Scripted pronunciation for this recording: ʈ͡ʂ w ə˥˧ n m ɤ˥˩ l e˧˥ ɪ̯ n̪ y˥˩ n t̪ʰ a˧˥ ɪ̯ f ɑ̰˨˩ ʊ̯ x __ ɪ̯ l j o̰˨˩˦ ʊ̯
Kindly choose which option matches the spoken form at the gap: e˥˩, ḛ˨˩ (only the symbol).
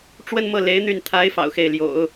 e˥˩